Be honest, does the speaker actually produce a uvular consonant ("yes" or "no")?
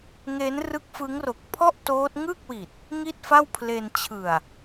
no